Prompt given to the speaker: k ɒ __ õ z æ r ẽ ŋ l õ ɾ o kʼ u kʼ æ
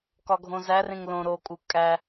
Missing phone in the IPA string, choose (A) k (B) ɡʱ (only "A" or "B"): B